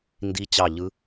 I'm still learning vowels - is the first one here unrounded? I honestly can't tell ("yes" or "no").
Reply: yes